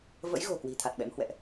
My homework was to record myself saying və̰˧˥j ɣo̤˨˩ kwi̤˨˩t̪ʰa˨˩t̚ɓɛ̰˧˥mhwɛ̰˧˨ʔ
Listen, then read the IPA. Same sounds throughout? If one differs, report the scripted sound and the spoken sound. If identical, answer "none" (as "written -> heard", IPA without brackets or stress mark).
none